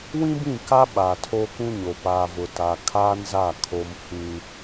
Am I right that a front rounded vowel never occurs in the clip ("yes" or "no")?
yes